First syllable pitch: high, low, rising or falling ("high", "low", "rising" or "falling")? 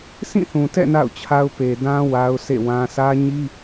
falling